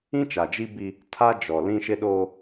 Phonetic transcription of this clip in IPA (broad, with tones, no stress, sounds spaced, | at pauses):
ĩ˦ t͡ʃ a˨ d͡ʒ i˦ b i˦ | tʰ a˦ d͡ʒ ɔ˨ l ĩ˦ ʃ ɪ˦ ɗ oː˦